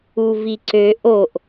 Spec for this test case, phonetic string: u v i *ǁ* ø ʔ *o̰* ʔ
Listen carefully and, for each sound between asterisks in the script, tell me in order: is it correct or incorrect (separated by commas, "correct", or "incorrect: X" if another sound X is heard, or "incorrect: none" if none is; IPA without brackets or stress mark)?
incorrect: ǀ, incorrect: o